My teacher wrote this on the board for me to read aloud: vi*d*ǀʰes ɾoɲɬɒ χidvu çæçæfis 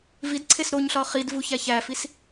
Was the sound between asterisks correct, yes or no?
yes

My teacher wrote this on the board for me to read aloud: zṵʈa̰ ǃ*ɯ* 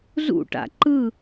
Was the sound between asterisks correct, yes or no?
yes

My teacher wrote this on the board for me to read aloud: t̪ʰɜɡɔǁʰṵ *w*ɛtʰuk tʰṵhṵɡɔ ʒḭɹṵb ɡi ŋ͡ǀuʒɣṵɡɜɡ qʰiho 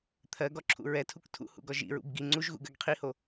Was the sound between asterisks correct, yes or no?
no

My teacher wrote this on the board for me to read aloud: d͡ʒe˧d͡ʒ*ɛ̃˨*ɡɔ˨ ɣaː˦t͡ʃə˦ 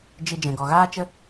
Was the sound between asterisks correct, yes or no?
yes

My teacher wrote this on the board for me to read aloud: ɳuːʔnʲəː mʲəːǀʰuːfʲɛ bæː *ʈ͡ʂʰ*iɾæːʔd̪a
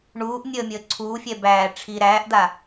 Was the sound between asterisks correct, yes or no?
yes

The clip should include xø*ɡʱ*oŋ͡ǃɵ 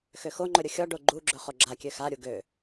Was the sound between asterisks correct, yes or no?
no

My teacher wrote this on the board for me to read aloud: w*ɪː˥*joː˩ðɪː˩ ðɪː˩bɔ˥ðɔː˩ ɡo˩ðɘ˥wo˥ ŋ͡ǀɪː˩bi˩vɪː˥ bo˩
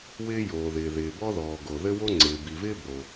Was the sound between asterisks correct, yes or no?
yes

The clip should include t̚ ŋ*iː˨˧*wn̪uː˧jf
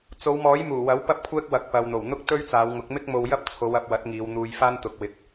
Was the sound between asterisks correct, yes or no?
yes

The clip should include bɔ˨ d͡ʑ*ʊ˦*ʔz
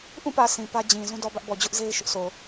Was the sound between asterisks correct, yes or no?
yes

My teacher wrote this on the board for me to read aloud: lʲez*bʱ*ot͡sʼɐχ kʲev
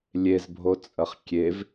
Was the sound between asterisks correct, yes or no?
yes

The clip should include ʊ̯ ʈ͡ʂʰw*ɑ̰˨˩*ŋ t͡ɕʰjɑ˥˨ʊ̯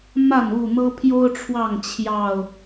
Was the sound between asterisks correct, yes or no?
no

